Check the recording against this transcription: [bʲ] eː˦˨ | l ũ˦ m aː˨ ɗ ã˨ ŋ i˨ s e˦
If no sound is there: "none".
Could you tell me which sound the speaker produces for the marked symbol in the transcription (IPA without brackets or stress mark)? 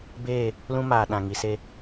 b